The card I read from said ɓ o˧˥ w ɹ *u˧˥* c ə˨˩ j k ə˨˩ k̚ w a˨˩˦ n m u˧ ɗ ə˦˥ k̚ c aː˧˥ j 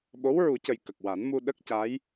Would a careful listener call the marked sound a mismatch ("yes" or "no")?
yes